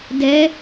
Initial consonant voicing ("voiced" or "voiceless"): voiced